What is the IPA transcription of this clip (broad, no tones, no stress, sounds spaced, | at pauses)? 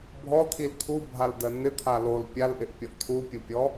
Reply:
bʱ ɔ t̪ʰ i l t̪ʰ u bʱ a l d ɜ n ɪ t̪ʰ a l o l pʲ a l ʔ ɪ ʔ pʲ ɔ ʔ t̪ʰ u pʲ u pʲ ɔ